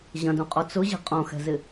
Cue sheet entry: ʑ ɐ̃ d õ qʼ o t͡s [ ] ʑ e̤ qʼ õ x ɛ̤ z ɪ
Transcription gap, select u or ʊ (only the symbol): ʊ